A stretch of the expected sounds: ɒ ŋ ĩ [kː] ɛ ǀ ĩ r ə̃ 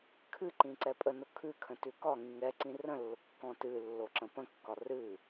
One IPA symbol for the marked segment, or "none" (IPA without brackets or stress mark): ŋ